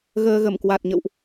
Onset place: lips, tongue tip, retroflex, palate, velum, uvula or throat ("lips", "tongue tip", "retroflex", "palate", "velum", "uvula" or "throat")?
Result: velum